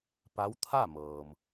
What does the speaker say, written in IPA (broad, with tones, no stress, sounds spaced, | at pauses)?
p a˧˥ w t̪ʰ a˥˨ m ɤː˩ m